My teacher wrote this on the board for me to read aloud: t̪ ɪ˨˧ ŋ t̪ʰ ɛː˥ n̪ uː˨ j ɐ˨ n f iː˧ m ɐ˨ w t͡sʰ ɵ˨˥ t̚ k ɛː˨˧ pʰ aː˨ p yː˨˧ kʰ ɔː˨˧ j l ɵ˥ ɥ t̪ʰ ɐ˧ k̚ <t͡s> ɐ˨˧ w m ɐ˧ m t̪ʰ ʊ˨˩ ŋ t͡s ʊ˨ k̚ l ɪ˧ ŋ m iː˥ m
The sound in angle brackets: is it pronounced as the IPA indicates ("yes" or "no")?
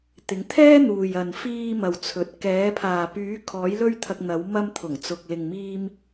no